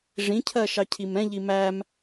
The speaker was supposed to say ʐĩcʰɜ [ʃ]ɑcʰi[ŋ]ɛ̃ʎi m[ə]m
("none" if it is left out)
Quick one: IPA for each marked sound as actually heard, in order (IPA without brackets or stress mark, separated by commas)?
ʃ, m, æ